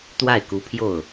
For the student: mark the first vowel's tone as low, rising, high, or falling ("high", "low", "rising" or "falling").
falling